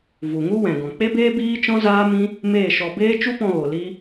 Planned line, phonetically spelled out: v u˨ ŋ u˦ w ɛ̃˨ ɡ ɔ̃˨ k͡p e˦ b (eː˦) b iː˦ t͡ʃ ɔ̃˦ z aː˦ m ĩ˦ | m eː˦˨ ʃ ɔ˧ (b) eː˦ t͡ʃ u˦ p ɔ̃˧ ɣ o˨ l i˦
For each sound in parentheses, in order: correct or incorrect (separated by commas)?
correct, correct